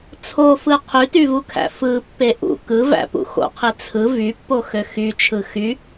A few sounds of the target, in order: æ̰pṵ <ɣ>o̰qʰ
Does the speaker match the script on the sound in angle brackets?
no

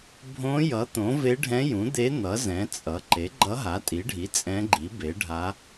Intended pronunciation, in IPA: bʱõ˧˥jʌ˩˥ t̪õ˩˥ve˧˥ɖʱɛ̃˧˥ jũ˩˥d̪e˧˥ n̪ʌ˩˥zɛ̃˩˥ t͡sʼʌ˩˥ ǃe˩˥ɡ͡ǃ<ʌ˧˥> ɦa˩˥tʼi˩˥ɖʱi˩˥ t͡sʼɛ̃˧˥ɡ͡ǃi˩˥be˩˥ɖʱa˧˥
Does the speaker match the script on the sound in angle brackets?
yes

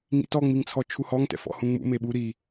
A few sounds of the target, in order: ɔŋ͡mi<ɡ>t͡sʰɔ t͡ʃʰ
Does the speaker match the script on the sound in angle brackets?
no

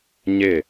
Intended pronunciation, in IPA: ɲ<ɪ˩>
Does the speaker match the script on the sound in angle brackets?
no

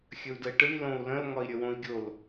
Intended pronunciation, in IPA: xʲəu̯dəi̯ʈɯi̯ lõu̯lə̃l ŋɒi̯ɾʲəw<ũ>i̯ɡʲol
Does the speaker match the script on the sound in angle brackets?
no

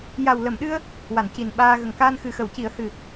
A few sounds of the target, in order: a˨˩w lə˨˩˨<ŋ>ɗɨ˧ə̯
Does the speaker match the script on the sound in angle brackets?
no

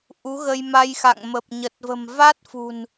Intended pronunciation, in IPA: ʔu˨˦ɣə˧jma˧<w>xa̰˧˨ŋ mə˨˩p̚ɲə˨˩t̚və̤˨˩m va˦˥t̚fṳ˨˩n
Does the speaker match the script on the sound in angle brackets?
no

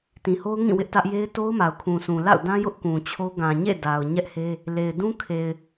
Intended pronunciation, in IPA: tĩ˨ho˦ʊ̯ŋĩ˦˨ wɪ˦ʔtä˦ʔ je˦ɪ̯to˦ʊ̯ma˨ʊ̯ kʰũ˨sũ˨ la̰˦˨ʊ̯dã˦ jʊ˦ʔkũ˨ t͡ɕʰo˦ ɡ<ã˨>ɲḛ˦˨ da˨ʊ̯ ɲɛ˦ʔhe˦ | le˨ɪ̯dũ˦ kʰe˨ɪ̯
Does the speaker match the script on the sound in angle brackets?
yes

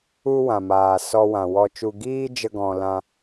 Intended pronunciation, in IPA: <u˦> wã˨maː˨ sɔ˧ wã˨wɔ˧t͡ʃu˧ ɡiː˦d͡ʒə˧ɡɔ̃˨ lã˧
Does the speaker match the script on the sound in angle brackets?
yes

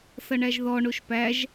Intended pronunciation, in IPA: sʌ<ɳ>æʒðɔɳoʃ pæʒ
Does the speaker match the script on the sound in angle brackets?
yes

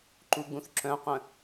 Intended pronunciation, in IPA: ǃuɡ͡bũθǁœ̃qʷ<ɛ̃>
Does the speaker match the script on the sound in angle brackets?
no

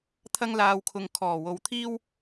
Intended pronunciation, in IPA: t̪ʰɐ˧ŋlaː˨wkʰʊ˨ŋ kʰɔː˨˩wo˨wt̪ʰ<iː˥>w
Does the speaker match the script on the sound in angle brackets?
yes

